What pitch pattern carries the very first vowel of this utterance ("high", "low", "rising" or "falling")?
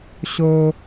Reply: high